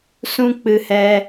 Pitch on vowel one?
high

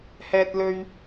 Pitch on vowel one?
high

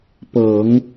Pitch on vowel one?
low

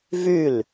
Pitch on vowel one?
falling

